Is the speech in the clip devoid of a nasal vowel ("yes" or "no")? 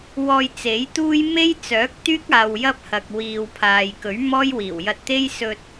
yes